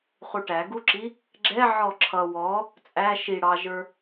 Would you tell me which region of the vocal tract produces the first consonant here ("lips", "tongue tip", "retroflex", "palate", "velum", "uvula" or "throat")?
uvula